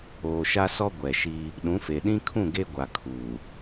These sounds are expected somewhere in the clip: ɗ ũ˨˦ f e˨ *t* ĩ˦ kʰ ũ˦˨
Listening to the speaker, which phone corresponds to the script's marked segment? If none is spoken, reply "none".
ɗ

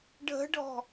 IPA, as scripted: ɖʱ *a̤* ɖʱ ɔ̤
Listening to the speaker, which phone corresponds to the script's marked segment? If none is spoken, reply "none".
ə̤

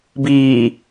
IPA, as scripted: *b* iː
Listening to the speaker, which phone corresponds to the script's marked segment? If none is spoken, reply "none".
b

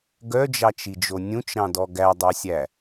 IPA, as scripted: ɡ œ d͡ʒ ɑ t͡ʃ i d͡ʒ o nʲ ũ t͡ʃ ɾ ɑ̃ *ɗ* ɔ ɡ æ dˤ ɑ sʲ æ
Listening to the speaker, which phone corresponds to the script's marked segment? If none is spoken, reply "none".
d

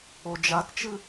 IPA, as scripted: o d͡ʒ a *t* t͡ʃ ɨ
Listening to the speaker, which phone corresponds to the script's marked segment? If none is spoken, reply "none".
t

